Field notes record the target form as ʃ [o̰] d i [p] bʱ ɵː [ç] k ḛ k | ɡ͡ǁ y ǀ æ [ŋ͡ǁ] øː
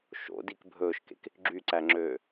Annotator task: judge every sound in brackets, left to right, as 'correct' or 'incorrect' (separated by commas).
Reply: correct, incorrect, incorrect, correct